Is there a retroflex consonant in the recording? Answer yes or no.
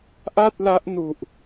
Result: no